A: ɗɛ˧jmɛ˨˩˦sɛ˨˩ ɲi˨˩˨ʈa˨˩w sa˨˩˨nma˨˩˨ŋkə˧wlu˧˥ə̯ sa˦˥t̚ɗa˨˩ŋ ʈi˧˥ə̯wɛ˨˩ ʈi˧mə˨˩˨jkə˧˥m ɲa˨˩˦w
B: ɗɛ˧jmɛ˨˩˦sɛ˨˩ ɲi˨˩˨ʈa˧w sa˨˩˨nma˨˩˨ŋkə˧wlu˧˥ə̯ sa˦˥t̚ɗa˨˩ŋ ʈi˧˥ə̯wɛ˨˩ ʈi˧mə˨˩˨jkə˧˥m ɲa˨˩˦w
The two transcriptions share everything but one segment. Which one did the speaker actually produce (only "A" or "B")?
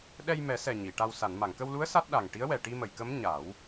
B